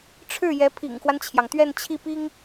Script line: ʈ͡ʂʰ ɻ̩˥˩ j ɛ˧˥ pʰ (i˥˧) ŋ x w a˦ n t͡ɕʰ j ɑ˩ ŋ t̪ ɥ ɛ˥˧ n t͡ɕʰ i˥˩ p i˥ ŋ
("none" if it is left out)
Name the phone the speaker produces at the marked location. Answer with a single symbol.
ḭ˨˩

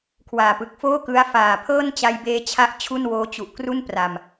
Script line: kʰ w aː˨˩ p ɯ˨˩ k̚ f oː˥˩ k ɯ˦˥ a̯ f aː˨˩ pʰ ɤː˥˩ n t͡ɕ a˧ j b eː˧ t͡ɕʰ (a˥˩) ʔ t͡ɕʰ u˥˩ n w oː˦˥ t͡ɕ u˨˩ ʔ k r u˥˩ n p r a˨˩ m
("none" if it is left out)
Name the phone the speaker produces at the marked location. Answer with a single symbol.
a˦˥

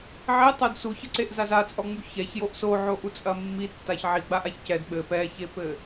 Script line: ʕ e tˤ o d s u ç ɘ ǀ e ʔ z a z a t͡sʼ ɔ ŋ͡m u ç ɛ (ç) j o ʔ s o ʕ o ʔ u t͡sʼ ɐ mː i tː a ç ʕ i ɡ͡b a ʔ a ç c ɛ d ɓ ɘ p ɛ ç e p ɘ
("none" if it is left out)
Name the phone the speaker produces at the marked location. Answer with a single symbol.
ç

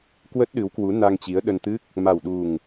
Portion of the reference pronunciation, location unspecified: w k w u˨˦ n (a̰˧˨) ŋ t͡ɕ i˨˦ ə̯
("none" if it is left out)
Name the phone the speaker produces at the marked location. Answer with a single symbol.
a˧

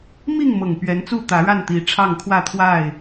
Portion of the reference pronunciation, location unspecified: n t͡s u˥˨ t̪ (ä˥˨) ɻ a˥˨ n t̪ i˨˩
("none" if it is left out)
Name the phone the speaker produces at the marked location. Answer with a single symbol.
ä˨˦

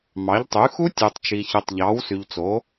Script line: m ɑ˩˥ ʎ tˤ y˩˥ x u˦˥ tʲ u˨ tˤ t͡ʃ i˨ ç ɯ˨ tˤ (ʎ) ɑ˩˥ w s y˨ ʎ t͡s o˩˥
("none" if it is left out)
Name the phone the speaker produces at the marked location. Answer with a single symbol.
ʎ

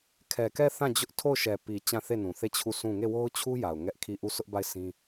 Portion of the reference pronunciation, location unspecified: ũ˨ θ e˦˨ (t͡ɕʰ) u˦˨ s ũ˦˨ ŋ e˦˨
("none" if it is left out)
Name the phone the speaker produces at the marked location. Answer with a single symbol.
t͡ɕʰ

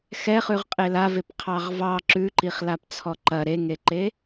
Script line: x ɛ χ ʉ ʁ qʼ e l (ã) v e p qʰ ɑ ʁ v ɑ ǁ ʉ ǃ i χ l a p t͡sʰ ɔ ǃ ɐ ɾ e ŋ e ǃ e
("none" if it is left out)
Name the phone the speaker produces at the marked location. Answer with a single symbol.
a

